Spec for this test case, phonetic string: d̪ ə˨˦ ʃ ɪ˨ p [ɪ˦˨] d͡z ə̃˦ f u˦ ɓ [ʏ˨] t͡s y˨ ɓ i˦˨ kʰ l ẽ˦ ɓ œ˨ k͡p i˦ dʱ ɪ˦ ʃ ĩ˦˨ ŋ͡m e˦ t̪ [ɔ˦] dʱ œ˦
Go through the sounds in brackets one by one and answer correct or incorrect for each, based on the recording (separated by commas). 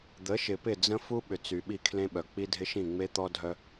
correct, correct, correct